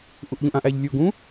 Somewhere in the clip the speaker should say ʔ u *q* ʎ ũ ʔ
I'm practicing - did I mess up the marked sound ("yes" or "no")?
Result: yes